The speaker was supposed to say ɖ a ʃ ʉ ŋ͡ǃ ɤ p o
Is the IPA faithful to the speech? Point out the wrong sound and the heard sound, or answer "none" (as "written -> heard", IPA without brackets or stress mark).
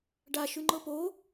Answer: none